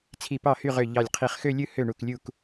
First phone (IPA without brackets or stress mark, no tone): t͡sʰ